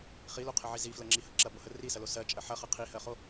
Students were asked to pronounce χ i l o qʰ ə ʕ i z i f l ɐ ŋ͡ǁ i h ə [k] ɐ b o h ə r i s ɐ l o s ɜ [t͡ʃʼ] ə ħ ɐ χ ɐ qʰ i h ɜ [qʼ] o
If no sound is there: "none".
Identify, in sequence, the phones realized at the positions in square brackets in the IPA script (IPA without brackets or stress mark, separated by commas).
ǁ, t͡ʃʼ, χ